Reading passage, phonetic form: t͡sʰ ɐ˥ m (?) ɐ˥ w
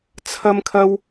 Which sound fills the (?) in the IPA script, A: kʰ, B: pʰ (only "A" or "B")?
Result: A